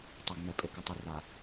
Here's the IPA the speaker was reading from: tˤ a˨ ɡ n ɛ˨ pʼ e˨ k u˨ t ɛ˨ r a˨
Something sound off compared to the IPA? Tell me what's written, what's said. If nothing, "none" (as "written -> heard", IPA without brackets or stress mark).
t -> tˤ